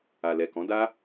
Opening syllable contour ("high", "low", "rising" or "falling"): low